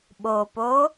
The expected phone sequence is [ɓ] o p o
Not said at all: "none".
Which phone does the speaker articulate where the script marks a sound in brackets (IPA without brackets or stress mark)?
ɓ